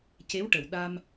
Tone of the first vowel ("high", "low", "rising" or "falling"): rising